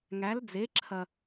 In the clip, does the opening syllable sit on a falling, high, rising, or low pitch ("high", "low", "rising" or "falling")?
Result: rising